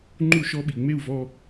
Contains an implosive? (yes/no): yes